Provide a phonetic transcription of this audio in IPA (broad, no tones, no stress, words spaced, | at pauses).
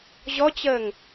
ʑɔt͡ɕəːŋ